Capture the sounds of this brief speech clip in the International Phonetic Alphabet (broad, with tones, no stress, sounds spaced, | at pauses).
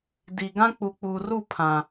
d i˨ ɡ ã˦ k͡p u˨ k͡p uː˨ r u˦˨ pʰ ã˨